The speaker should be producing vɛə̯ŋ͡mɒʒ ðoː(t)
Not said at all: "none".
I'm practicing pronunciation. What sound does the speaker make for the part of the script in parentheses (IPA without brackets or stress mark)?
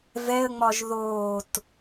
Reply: t